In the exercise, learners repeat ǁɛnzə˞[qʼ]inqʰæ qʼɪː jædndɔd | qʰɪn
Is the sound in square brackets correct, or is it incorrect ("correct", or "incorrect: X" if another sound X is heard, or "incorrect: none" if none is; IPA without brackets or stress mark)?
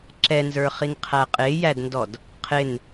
incorrect: χ